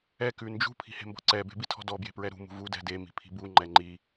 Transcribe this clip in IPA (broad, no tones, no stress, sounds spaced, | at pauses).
ɛ k ʉ n d͡ʒ ṳ pʰ i̤ h e̤ m b ɔ̤ ǀ ɛ b e̤ b i tʰ ɔ̤ d ɔ b j e̤ p ɹ ɛ ɾ ṳ m ṳ v u d ɛ̤ d e m i̤ pʰ i̤ b u ŋ͡ǃ ɛ ŋ͡ǃ i